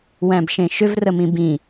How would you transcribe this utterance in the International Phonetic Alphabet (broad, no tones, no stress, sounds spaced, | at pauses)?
w æ̃ b ʃ ẽ ʃ ʏ v r ə m ĩ b ĩ